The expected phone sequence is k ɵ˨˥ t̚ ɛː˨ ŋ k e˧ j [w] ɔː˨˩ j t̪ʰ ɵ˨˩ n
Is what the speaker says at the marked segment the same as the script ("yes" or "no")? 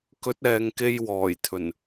yes